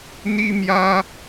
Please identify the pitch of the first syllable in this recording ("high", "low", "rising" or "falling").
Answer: high